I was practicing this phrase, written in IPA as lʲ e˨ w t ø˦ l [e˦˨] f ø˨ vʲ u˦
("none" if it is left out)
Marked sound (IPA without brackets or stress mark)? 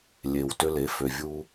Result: e˨˦